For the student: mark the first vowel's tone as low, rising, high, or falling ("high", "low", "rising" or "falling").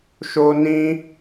high